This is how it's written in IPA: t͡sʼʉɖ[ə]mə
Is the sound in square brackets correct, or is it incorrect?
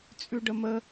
correct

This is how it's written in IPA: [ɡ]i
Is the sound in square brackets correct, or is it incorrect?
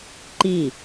incorrect: ǃ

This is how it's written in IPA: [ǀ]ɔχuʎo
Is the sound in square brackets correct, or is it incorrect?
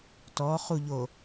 incorrect: t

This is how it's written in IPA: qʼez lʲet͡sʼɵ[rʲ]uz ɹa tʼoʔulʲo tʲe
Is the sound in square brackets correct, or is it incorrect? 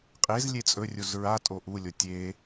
correct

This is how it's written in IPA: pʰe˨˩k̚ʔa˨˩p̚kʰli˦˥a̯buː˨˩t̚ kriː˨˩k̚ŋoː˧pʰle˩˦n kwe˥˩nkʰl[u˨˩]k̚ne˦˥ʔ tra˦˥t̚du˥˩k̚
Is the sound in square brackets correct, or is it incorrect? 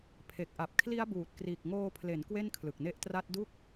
incorrect: ɯ˨˩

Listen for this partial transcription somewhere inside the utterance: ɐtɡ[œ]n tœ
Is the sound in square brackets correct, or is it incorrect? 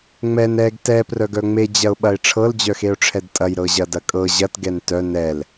incorrect: ɛ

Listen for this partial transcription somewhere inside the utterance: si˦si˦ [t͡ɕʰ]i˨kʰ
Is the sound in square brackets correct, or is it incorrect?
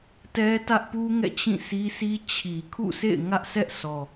correct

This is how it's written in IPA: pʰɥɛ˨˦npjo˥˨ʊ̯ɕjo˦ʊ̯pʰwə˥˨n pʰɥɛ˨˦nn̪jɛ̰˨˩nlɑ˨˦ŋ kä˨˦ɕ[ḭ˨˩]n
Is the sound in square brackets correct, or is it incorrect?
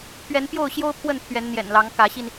incorrect: i˧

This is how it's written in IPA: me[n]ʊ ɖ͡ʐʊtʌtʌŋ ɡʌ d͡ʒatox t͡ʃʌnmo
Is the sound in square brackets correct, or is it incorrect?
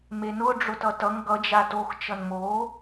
correct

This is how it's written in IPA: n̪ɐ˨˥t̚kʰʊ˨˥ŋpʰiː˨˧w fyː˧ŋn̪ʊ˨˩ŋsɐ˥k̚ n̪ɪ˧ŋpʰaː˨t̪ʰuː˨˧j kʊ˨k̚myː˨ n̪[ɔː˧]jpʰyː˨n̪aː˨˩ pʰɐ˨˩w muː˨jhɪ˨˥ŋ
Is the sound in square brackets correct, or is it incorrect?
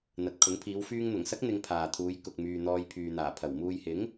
correct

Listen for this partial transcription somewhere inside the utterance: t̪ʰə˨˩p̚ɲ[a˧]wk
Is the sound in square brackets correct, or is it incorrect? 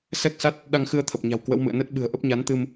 incorrect: a̤˨˩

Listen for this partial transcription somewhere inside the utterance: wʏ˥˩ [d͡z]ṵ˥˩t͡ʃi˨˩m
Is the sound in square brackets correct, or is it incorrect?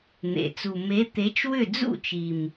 correct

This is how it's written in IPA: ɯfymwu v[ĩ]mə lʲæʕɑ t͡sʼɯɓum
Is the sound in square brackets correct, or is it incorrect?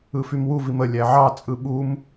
incorrect: i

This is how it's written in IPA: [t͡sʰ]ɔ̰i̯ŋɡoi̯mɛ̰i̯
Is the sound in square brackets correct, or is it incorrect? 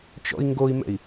incorrect: t͡ʃ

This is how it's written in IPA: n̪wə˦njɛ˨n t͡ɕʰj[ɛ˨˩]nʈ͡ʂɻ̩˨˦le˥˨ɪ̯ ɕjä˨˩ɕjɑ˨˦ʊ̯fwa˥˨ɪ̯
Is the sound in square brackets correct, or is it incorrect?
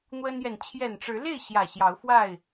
correct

